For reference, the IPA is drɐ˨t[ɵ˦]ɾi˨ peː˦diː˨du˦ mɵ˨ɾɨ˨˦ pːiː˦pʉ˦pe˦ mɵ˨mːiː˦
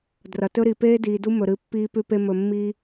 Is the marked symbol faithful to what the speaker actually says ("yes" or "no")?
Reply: yes